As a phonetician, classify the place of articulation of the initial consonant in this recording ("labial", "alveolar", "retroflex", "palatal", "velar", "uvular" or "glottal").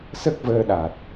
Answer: alveolar